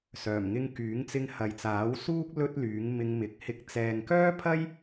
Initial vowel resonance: oral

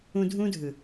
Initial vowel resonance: nasal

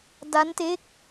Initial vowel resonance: oral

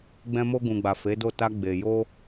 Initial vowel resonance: nasal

